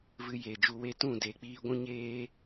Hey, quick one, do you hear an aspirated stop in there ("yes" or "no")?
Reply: no